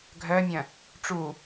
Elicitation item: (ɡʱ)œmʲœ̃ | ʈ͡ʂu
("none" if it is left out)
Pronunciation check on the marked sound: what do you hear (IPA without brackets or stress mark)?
ɡʱ